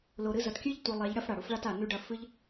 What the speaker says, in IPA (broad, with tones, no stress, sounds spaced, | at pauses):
l o˨ ɾ ɨ˧ z ɐ˨ t kʲ ɨ˦ ʎ tʷ i˨ lˠ e˨˦ ʎ ɽ ɐ˦ f ɽ a˨ ɽ u˦ f ɭ a˦ t a˨ n ʉ˧ ɖ ɐ˧ f ɨ˦ ʎ